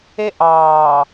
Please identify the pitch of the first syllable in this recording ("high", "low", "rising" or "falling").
high